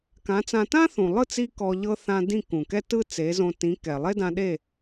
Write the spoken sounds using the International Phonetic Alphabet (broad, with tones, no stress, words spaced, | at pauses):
kã˩˥t͡sã˧ tã˥θũ˩lˠɯ˥˩t͡si˧ kɔ˧ʎɤ˥ θã˧dĩ˥˩ kũ˩kɛ˥tɯ˥ t͡se˩˥zõ˧ tĩ˩˥kɛ˩ lˠe˥dã˧ɗe˥˩